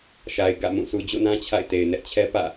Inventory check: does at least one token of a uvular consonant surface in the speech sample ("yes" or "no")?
no